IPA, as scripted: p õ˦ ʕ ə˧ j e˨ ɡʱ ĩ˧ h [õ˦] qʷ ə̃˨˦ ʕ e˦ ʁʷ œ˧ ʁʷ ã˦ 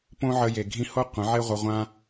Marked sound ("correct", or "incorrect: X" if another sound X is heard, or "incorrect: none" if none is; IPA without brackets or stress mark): incorrect: o˦